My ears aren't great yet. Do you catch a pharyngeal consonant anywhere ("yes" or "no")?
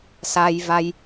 no